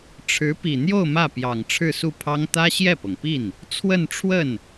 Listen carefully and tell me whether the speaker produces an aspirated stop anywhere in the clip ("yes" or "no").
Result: yes